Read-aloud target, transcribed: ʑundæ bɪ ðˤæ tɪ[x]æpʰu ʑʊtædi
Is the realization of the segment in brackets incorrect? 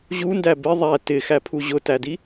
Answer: no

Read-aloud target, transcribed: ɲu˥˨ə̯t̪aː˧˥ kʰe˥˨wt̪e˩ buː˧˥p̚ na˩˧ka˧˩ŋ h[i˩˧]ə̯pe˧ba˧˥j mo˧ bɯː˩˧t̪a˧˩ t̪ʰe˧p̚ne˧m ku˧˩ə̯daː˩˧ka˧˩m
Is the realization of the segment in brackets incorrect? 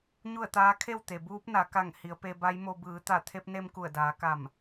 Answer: no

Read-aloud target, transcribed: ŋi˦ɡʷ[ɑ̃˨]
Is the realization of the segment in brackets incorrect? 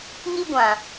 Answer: yes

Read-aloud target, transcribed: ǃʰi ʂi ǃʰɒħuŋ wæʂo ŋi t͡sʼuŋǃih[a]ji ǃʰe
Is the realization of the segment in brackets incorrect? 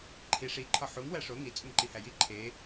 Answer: yes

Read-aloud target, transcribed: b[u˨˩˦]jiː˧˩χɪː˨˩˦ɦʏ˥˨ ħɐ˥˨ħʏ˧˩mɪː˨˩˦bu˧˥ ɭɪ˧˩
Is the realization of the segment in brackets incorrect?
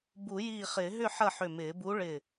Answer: no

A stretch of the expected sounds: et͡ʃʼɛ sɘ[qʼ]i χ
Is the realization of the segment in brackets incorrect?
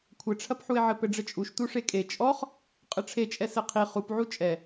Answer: yes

